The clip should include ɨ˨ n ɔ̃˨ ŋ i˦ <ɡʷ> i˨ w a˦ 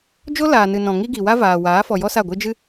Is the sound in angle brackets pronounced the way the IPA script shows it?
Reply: no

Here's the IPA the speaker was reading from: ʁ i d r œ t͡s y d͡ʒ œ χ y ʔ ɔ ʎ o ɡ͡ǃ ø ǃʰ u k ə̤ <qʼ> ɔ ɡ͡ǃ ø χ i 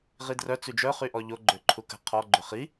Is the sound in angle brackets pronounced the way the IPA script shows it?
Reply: no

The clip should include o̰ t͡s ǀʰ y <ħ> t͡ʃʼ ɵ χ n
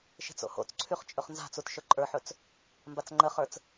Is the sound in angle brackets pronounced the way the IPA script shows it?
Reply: no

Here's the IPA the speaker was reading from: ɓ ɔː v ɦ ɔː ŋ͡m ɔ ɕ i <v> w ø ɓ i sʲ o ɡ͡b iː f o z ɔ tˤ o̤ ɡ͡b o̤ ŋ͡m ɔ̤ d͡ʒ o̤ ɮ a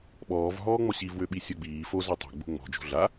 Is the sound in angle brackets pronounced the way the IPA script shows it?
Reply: yes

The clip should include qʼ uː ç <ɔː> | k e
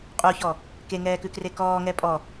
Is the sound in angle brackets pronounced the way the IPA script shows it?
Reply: no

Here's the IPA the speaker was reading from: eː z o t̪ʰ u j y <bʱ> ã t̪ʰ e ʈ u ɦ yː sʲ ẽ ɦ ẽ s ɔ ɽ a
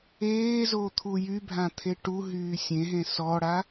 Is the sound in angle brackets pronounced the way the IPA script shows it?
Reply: yes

